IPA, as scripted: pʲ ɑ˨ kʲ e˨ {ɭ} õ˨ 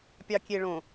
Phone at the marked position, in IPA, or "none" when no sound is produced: ɭ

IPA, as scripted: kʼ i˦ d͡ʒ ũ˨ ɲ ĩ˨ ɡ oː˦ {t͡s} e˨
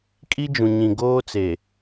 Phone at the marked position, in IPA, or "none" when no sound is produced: t͡s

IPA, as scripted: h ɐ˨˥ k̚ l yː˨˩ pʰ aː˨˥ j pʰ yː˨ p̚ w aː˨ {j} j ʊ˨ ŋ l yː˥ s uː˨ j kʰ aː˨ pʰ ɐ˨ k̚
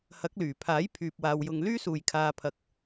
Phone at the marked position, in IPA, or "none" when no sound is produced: w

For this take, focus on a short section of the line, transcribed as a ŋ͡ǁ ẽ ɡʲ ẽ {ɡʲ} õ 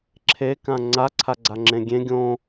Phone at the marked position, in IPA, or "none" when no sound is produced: ɡʲ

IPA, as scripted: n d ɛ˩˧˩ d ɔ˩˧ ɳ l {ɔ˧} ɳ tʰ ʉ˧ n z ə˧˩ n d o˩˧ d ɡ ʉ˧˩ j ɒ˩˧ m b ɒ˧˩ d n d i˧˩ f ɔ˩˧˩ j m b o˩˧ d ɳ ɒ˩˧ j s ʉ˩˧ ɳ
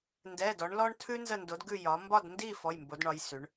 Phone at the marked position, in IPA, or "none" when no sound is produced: ɔ˧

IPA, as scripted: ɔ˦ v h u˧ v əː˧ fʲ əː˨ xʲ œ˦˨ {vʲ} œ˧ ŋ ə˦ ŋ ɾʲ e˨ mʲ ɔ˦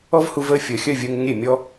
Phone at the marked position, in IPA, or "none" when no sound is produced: vʲ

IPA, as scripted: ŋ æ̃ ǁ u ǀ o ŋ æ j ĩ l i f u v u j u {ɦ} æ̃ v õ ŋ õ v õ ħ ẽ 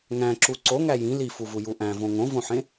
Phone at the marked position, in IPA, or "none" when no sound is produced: ʔ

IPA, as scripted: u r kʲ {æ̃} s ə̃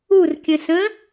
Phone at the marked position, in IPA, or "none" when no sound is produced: ə̃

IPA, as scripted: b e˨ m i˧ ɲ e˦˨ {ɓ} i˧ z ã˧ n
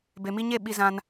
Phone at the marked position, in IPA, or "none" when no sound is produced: ɓ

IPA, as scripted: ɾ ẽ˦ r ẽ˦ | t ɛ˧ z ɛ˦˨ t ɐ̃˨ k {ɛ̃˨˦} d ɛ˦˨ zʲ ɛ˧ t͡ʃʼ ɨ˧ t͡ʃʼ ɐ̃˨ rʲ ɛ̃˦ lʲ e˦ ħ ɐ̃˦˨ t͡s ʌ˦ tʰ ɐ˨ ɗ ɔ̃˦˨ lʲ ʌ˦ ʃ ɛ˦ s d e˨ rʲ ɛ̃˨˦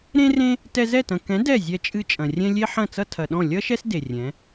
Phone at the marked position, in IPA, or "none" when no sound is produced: ɛ̃˨˦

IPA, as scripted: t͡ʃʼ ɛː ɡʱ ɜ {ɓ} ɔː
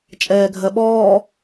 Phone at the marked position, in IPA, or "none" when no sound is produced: ɓ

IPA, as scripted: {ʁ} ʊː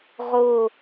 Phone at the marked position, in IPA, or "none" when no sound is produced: ʁ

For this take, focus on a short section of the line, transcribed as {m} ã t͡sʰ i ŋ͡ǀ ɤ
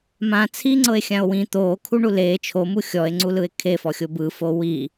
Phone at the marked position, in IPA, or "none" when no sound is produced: m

